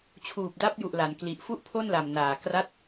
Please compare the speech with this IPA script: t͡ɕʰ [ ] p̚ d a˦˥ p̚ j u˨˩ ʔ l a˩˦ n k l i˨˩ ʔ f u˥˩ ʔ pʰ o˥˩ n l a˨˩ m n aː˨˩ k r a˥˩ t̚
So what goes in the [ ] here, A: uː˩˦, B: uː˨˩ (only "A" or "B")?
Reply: B